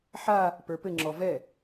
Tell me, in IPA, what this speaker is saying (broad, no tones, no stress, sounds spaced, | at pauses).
ħ a | p ə˞ p ɘ ŋ͡ǁ ɔ v ɛ